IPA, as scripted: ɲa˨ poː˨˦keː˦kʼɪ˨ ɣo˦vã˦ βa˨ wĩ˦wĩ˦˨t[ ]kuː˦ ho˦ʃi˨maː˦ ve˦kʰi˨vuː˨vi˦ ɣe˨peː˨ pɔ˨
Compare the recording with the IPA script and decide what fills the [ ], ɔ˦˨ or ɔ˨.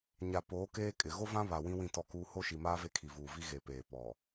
ɔ˦˨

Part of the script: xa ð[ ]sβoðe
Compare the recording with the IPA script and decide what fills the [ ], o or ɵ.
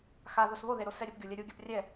o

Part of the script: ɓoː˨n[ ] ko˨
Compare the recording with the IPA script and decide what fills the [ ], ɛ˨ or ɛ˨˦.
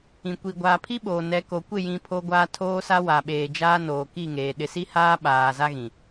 ɛ˨˦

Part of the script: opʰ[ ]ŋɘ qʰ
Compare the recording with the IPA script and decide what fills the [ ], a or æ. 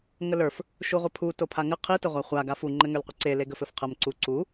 a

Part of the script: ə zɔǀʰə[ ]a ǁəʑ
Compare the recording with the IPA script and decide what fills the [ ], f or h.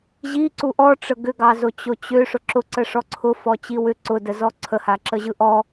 h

